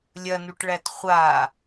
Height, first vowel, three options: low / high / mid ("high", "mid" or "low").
low